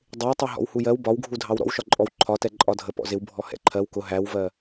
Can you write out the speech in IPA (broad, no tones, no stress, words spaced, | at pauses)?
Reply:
dˤɪwtˤɛ ɦɔ̰whujɜw bɒwɡʱudʱɑw ɾɔ̰wʃɒǃʼɔw ǃʰɒtɛ ǃʼɒdʱə pɔ̰zɪwbʱɔ hɛ̰ǃʰɜw kʊ ɦæwvɜ